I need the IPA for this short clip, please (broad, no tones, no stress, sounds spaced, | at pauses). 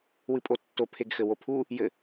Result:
w ɨ pʼ o tː o pʰ e ɡ x ɘ w o pʰ u | j ɘ